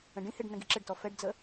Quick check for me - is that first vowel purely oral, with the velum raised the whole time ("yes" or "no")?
no